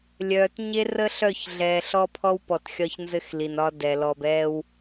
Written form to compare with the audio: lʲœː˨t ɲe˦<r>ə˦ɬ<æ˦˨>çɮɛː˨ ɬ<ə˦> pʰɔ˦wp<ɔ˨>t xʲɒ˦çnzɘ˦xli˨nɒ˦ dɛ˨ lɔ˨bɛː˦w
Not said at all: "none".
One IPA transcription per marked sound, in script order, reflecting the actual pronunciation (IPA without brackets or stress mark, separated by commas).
r, œ˦˨, ɔ˦, ɔ˨